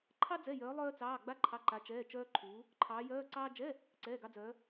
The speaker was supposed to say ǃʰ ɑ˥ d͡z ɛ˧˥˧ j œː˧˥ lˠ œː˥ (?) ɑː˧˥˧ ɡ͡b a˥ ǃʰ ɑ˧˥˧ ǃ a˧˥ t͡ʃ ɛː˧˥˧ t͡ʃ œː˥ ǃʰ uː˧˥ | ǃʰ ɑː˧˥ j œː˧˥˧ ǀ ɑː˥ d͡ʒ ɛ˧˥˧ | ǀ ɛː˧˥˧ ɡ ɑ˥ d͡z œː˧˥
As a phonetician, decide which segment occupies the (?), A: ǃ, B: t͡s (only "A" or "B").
B